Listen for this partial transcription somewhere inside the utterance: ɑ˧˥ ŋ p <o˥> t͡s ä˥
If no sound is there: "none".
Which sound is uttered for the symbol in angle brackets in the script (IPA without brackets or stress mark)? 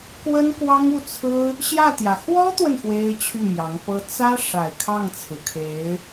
ɤ˥